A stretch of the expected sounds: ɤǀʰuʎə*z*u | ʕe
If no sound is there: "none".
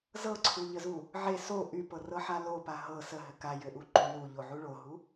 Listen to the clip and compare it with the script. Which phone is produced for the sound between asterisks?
z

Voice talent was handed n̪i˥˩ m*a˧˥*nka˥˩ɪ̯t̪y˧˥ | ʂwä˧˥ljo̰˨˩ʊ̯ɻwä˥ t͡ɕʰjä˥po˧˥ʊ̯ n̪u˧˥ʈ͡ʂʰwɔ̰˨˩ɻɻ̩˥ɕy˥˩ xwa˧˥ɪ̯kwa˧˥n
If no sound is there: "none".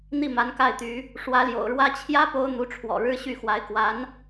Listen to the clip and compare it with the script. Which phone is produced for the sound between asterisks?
a˧˥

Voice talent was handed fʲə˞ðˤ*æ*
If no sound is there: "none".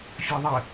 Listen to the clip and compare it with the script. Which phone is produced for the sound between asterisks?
ə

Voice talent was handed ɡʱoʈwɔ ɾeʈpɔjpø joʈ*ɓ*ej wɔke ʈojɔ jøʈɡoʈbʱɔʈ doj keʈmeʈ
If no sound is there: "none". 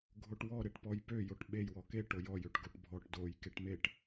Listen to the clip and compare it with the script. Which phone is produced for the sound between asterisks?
ɓ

